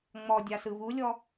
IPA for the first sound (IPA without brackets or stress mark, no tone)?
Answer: ŋ͡m